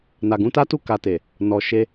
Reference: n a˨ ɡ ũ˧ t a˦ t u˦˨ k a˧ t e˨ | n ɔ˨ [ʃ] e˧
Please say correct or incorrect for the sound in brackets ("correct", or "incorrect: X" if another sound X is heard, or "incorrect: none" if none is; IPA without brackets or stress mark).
correct